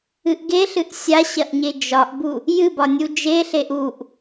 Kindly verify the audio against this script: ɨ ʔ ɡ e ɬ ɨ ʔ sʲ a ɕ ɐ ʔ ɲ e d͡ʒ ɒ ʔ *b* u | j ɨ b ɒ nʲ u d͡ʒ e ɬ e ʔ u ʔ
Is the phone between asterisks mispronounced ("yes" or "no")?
no